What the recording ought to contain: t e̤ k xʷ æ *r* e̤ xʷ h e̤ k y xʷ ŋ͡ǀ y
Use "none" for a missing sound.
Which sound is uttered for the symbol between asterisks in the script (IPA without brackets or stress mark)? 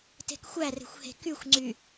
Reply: r